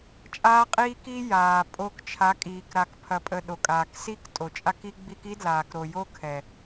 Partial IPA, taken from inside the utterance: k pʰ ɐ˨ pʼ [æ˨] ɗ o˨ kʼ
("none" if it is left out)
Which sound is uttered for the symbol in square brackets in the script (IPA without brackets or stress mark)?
ə˨